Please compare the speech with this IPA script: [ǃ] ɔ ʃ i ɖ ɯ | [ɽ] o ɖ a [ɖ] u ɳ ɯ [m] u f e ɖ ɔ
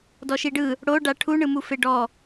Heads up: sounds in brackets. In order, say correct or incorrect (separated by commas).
incorrect, correct, incorrect, correct